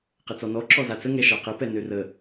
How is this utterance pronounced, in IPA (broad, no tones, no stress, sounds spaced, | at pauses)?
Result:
q ə t͡s ɔ n ɔ ǁ ɔ z a t͡s ə ŋ ɛ ʃ ɑ q ə p ɛ n ø r ə